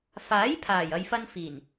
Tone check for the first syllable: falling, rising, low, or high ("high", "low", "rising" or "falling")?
rising